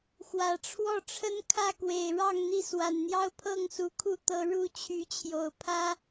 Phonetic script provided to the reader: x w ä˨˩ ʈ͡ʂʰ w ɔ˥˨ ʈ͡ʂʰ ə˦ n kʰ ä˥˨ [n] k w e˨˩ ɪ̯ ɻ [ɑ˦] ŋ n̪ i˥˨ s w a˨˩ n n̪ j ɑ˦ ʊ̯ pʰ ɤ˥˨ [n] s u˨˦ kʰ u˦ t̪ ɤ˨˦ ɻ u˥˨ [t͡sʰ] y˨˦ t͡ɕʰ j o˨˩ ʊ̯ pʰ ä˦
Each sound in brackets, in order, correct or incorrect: incorrect: none, incorrect: ɑ˥˨, incorrect: ŋ, incorrect: t͡ɕʰ

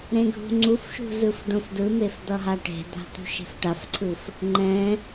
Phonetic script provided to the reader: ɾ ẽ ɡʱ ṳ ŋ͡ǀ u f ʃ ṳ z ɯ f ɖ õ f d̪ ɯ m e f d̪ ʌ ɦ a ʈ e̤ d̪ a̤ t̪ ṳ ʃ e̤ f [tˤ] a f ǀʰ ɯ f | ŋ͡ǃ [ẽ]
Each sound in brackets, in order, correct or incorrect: incorrect: ʈ, incorrect: ɛ̃

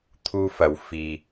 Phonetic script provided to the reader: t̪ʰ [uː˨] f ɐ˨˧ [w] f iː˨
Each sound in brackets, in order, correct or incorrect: incorrect: uː˥, correct

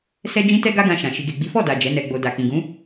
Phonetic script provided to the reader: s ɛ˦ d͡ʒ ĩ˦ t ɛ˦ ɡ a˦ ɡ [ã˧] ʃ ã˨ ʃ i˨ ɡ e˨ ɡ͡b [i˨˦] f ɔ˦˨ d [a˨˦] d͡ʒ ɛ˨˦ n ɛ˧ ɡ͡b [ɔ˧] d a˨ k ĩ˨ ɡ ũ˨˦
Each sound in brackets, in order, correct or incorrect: correct, correct, incorrect: a˨, incorrect: o˧

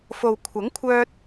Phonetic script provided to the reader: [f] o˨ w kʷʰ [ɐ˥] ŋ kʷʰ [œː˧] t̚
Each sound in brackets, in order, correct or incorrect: correct, incorrect: ɐ˨˥, correct

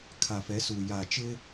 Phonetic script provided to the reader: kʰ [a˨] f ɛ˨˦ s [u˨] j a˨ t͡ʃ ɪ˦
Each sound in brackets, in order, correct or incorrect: correct, correct

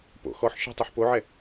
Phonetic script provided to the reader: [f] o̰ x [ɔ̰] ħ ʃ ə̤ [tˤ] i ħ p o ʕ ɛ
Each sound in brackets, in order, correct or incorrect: incorrect: p, incorrect: ɔ, correct

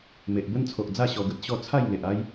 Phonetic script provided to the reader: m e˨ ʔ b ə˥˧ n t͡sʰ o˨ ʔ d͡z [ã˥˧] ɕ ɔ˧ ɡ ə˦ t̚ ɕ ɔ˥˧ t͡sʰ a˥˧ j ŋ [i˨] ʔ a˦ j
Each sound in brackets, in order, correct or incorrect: incorrect: a˥˧, incorrect: e˨

